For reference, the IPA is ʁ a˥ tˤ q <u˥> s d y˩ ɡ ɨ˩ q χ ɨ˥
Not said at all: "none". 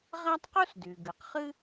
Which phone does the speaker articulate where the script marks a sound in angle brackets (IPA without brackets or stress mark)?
u˥